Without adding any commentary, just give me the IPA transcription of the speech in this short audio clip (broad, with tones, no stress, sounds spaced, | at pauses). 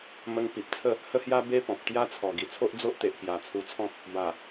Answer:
m ə˧ ŋ p i˨ p̚ t͡sʰ ə˥˧ | h ə˦ h j a˦ b e˦ p ɔ̃˨ p̚ t̪ j a˦ t͡sʰ ɔ˨˩ ɡ i˨˩ t͡sʰ o˦ ʔ d͡z o˦ ʔ t̪ e˨ ʔ k j a˨˩ t͡sʰ u˧ t͡sʰ ɔ̃˦ k̚ | b a˨˩